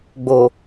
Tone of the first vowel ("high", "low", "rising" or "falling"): low